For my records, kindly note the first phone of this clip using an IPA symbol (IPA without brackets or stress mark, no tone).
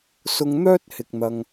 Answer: s